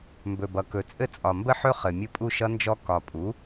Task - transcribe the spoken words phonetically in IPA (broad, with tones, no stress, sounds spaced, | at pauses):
m b ɵ˨˩ b ʌ˨˩ k ɵ˨˩ t͡sʼ ɘ˥˨ t͡sʼ ɒ˨˩ m b ə˥˨ ħ ɵ˦˥ χ ɘ˨˩ mʲ ɘ˥˨ pʼ u˥˨ ʃ ʌ˦˥ n d͡ʒ ɔ˦˥ k ɒ˨˩ pʼ u˩˥